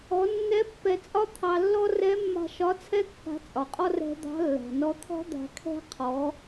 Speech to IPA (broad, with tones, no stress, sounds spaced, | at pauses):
ɔ˩˧ nː ɛ˧˥ pː ɛ˧ t͡sʼ ɒ˥ t̪ʰ ɑ˧ lː ɔ˥ r ɛ˧˥ mː a̤˧ ʃ ɒ˧˥ t͡sʰ ɛ˥ kː a̤˧˥ t͡sʼ ɒ˩ qʼ ɔ˥ r ɛ̤˧ d̪ ɑ̤˧˥ lː a̤˩ n ɔ˧ t̪ʰ ɔ̤˥ d̪ a̤˧ kʰ ɛ̤˥ qʰ ɔ˩˧